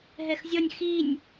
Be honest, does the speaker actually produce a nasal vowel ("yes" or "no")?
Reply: no